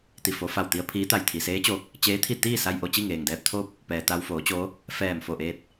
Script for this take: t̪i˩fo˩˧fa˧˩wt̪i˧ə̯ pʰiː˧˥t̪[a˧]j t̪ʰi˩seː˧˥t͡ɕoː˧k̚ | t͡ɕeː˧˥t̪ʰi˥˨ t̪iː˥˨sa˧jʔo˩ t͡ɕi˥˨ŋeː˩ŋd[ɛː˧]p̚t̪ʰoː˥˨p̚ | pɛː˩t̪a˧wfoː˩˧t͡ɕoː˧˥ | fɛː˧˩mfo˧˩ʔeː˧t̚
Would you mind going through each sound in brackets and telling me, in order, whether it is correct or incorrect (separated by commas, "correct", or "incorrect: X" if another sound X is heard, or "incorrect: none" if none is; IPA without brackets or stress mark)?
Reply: incorrect: a˧˩, correct